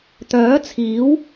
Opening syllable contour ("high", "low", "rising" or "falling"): rising